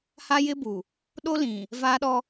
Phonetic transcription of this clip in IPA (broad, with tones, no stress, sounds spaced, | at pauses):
h a˦ j ɪ˦ b u˨ | ɗ o˦ l ĩ˨ | v aː˦ ɗ ɔ˦